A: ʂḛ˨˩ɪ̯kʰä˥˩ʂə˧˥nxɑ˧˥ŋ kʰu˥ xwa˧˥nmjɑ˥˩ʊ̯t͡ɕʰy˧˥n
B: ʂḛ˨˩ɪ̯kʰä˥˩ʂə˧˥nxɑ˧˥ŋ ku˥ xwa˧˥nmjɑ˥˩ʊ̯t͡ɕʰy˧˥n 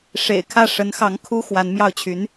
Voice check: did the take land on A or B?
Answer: A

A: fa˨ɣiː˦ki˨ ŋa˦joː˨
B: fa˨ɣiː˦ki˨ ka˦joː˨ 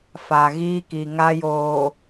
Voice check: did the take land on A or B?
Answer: A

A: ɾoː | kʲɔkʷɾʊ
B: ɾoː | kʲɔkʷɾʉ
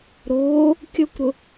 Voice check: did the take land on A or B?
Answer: A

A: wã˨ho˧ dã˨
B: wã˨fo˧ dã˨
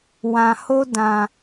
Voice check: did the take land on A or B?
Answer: A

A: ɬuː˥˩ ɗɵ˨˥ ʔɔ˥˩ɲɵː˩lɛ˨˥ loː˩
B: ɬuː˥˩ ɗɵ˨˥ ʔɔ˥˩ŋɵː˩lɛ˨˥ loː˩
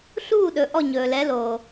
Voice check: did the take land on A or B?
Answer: A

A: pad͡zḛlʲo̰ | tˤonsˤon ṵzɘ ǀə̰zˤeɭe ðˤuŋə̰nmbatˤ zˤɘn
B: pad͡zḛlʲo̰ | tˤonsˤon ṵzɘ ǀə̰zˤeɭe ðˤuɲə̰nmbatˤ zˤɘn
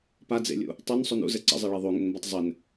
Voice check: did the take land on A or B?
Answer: A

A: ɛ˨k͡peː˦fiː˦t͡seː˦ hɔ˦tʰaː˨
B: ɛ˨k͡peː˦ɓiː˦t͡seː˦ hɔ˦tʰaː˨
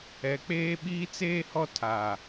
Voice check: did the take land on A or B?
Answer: B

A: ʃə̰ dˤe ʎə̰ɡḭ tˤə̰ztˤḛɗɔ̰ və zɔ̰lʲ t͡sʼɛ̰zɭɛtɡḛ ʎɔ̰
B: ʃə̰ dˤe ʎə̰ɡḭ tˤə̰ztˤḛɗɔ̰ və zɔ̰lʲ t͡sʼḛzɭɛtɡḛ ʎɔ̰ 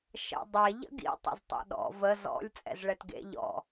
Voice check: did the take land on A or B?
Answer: A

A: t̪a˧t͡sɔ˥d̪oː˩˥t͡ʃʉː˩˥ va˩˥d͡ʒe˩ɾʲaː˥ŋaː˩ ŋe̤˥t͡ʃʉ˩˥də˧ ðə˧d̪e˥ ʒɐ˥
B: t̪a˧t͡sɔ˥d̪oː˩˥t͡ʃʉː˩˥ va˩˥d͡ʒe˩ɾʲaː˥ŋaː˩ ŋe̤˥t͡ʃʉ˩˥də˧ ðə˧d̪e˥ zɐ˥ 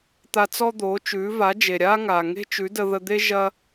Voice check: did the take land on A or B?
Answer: A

